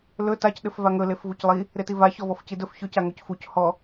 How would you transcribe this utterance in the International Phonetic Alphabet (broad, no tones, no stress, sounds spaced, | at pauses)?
l ɵ t a c ɗ ɘ f v a ŋ ɵ l e f v u c lˠ i | ɾ e t i v a ç ɔ v ɔ f c i d ɵ f ç ɵ c a ŋ ɵ c f u c h ɔ